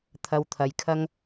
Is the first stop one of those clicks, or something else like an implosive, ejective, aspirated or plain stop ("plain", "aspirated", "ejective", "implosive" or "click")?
aspirated